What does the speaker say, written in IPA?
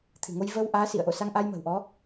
t̪ʰ ɨ̤˨˩ ŋ o˧ j v ə˧ w ʔ aː˨˦ s ḭ˧˨ ə̯ ʔ o̰˧˨ s a˧ ŋ ʔ a˧ j m ə̤˨˩ w ʔ ɔ˨˦

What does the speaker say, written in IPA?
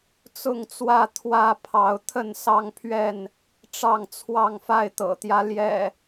t͡s ʊ˥˨ ŋ t͡s w ä˥˨ t̪ʰ w ä˥˨ pʰ ɑ˨˦ ʊ̯ t̪ʰ ə˥˨ n s ɑ˦ ŋ pʰ ɥ ɛ˥˨ n | ʈ͡ʂ ɑ˥˨ ŋ t͡sʰ w ɑ˥˨ ŋ f a˥˨ ɪ̯ t̪ ɤ̰˨˩ t̪ j ä˦ l j ɛ̰˨˩

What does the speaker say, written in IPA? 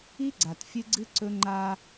i˦ ɡ͡ǀ a˨ t fʲ ɨ˦ ɡ͡ǀ ɨ˦ ǀ ɵ˦ ŋ͡ǃ aː˦

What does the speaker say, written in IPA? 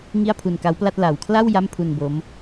ŋ i˥˩ a̯ pʰ u˧ n k a˦˥ w p l a˥˩ t̚ l a˨˩ w kʰ l a˥˩ w j a˥˩ m pʰ u˧ n b o˦˥ m

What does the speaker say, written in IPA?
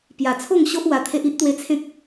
p j a˨˩ t͡sʰ o˥˧ ŋ ɕ o˦ ʔ w a˧ t̪ʰ e˦ ʔ i˦ ʔ t̪ w e˧ t͡sʰ ẽ˦ k̚

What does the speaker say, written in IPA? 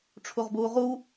ʈ͡ʂʰ u ʁ b uː ʁ u

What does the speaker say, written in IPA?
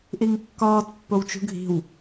ʔ i ŋ kː ɒː t pː o w t͡ʃ ṳ ɡʱ i̤ w

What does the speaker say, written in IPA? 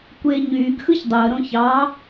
kʷ eː ɲ yː ɡ x ɯ ç dˤ o ə̯ ɾ õ ç ɑ

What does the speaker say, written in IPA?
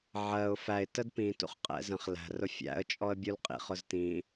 ʕ ɜ ʊ̯ f æ ɪ̯ t ə d p ĩ t ṵ χ qʼ ɛ̰ z ə̃ χ l æ̤ r ʊ fʲ æ̰ ə̯ t͡ʃʼ ɔ ə̯ bʲ u l qʼ ḭ χ ʊ z t ĩ

